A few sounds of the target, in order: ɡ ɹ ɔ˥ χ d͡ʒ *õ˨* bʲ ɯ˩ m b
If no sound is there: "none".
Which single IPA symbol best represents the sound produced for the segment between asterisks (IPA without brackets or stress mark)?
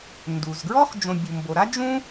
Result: õ˨